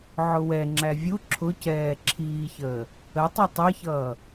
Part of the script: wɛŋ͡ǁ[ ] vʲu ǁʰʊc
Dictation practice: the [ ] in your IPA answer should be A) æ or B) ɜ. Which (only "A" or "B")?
A